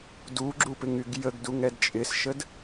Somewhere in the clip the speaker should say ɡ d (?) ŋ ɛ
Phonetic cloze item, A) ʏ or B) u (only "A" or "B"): B